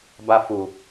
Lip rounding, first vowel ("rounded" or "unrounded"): unrounded